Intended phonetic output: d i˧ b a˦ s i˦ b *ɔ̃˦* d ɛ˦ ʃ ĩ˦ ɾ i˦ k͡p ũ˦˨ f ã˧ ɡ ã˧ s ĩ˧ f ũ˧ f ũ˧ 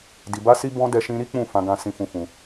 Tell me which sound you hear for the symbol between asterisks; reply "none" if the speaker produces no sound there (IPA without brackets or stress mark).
ɔ̃˦